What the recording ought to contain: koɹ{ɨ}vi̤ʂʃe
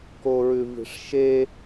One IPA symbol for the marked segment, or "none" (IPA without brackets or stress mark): ʉ